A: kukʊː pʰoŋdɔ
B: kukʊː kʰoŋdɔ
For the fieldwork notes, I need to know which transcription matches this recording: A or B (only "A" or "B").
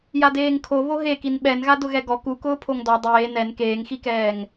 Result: A